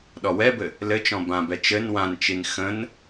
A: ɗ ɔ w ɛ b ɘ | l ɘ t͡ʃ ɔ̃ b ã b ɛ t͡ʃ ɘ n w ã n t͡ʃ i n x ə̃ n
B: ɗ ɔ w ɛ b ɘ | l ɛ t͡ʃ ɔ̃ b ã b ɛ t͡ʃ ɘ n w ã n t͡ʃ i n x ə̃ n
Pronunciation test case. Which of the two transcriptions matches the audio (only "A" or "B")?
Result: A